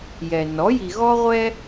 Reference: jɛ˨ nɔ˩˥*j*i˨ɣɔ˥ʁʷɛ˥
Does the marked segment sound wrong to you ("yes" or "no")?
no